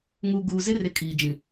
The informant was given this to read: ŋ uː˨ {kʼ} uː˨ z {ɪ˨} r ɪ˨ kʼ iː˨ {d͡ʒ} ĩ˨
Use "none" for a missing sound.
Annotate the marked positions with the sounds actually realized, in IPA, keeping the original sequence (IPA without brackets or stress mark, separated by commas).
ɡ, ɪ˦, d͡ʒ